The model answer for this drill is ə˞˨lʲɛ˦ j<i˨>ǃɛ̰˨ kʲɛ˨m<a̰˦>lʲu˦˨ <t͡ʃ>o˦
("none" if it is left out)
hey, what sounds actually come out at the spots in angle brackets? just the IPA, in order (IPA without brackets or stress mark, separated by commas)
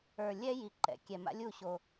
i˨, a̰˦, ɕ